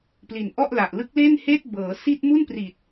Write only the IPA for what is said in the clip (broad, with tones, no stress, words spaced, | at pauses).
pli˨˩nʔɔ˥˩ʔla˨˩ʔ lɯ˦˥k̚le˥˩nheː˥˩t̚ bɤː˩˦si˥˩t̚ mu˥˩npri˨˩t̚